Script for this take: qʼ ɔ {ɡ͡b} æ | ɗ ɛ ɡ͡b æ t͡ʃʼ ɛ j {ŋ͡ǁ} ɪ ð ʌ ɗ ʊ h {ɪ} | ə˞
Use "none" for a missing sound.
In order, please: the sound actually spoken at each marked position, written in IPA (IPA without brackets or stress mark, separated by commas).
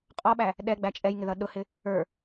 ɓ, ŋ, ɪ